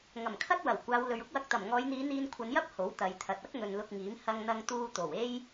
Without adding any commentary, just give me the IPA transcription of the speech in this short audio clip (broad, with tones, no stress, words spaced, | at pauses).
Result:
ŋɐ˨˩mkʰɐ˥t̚wɐ˨˩w kʷaː˨˧w lɵ˨ɥʊ˥k̚wɐ˧k̚ t̪ɐ˨˩mŋɔː˨˧jn̪iː˨˧ n̪iː˧n kʷʰɐ˨˧njɐ˥p̚ ho˨˥wt̪ɐ˨˧jt̪ʰɐ˨t̚ ɐ˥k̚ŋɵ˨n lʊ˧k̚ŋiː˨˥m hɐ˧ŋn̪ɐ˧ŋt̪uː˧t̪o˨˩w e˥j